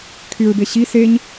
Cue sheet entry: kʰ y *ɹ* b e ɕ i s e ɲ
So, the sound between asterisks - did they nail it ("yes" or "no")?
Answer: yes